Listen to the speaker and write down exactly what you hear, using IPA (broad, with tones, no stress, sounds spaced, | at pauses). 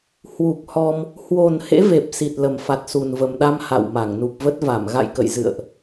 h w u˨˩ k̚ h ɔ˧ m | h w o˨˩ n h ḛ˧˥ v e˨˩ p̚ s i˨˩ t̚ l ə˨˩ m f a˨˩ t̚ s u˨˩ n v ə˨˩ m ɗ a˧ m h a̰˧˨ w m a˧˩ ŋ n u˨˩ p̚ v ə˦˥ t̚ v a˧˩ m ɣ a̰˧˨ j k ə̰˧˨ j z ɨ̰˧˨ ə̯ ʔ